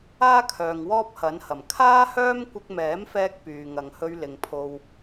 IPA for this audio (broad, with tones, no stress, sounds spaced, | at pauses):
aː˥ kʰ œː˨ ŋ w ɔː˥ p̚ h ɐ˨˥ n h ɐ˨˩ m kʰ aː˥ h œː˥ m kʷ ɪ˧ k̚ m ɛː˨˥ m f ɛː˧ k̚ p yː˨ ŋ ɐ˨ ŋ h ɵ˧ ɥ l ɪ˨ ŋ pʰ o˨ w